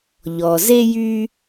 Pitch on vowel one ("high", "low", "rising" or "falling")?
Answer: low